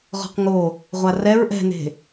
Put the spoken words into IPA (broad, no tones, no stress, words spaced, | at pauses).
ʁɔ̤qŋo | ʁʷarɛɹ ʔɛ̤ne̤